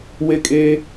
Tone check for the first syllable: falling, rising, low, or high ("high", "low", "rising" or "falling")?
high